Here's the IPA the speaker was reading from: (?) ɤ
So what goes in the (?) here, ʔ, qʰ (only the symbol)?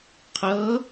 qʰ